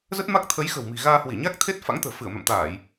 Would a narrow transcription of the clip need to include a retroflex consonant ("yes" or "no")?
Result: no